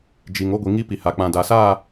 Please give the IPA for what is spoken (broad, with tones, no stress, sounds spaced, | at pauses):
d͡ʒ i˨ ŋ o˦ ɡʷ i˨ ŋ i˦ p i˨ h a˨ k͡p ã˨ d a˨ s aː˦˨